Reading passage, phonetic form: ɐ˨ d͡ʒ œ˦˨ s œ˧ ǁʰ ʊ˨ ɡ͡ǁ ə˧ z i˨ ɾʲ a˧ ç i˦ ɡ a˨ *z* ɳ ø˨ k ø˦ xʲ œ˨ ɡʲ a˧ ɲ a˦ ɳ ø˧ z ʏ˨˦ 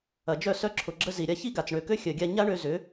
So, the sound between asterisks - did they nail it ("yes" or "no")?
no